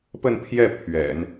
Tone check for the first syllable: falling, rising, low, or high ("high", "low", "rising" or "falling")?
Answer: falling